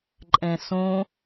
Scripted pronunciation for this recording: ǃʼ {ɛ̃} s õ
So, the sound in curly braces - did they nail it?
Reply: yes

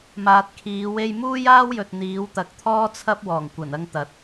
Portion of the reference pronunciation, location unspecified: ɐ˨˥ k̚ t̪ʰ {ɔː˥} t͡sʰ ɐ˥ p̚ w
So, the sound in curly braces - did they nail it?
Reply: yes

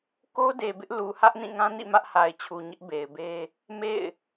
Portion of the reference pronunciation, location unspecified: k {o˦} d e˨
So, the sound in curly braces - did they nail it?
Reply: yes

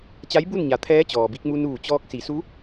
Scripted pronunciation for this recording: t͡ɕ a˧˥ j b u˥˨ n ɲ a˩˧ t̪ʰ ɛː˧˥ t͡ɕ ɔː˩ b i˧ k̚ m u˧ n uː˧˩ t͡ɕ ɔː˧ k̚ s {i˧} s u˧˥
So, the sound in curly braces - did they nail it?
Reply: no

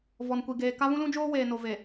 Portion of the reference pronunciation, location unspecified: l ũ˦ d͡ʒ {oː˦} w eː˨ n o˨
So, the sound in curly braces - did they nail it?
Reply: yes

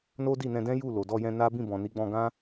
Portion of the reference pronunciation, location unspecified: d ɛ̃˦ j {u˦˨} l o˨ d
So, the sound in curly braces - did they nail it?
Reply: yes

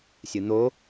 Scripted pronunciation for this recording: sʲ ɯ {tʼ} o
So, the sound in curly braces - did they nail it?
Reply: no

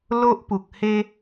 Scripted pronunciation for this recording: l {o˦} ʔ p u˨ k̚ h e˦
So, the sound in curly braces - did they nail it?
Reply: yes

